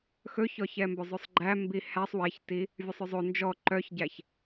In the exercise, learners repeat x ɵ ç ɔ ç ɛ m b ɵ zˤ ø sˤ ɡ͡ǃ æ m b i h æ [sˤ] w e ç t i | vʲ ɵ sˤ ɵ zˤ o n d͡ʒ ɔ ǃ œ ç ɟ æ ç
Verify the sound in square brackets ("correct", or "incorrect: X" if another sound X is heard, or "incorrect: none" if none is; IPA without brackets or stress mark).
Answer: correct